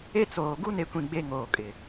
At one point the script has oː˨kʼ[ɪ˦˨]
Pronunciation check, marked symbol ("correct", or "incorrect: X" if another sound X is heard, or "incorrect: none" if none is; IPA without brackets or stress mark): incorrect: ɪ˨